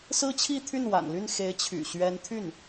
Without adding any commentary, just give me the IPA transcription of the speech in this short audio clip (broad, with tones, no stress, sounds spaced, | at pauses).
s ɹ̩˥ t͡ɕʰ i˥˧ t̪ʰ y˥˩ n w a̰˨˩ n l y˥˩ n x e˧˥ ɪ̯ t͡ɕʰ y̰˨˩ ɕ ɥ ɛ˧˥ n t̪ʰ y˥˩ n